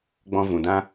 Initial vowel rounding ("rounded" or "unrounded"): rounded